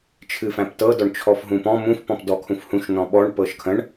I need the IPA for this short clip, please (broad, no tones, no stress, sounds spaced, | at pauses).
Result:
t͡ʃʰ ɨ f æ̃ p t ɤ d ɔ ɳ t͡ʃʰ ɔ f ɦ ũ p ɔ̃ m ũ f p ɔ̃ p d ɔ kʰ ũ f h ũ ʃ n ɔ̃ ɓ ɔ ɳ p ɤ ʃ kʰ ə̃ ɳ